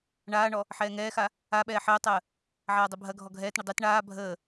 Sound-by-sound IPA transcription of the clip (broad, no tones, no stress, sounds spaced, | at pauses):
ɳ aː ɳ ɔ | ħ ɛː ŋ ɛː x a | a ɓ ɛː ħ əː tˤ əː | ʕ aː dˤ i bʱ ɐ ɡʱ ɔ ɡʱ ɛː t ɳ ə dˤ i t ɳ aː bʱ əː